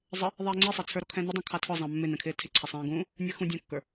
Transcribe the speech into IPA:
zˤ ə | ðˤ ɛː ŋ͡ǀ i sˤ ɛ t͡sʰ ə˞ ɾ ɔ kʰ ɛ̃ n ɪ dˤ ɑ̃ kʰ ɑ tʰ ɔ zˤ ɑ̃ mː ɪ n ɛ̃ kʰ ɪː tʰ ɪ ǀʰ ɛ sˤ ɛ̃ː ɡ ũː | nʲ ə˞ x ũ dʲ æ̃ kː ə˞

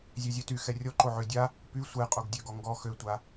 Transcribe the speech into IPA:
zʲ ø zʲ œ t y x ɛ rʲ ɔ ǃ o ʕ ø dʲ a | p y sʷ ɛ qʼ o ɡ dʲ ø ɡ ɔ ŋ ɡ ɔ x ø tʷ a

